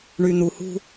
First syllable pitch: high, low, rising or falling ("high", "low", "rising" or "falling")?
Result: low